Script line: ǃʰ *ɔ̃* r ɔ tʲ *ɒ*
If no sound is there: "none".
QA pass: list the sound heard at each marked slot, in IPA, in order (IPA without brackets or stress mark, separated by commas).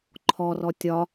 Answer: ɔ, ɒ